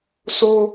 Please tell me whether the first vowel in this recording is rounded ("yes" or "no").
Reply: yes